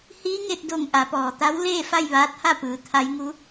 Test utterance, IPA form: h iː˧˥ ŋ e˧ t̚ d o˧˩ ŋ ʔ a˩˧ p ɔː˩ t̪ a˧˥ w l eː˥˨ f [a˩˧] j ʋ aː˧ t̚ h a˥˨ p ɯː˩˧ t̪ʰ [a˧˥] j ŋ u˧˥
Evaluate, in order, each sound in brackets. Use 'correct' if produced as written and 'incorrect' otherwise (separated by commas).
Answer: incorrect, correct